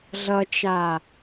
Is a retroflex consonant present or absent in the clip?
absent